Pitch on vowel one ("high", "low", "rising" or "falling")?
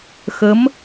rising